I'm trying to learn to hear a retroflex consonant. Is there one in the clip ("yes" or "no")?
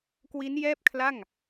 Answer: no